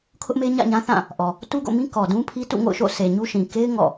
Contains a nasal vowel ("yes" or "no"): yes